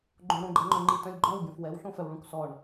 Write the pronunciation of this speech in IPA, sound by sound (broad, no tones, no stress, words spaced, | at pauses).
ɡ͡ǃõɽõɡ͡ǃɛŋ͡ǃœ̃ ŋ͡ǃitœ̃lʲɡ͡ǃɔ̃w ɡʲɔ̃fwɛwɬõ fœwɭũksɔɳ